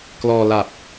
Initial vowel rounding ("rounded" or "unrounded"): rounded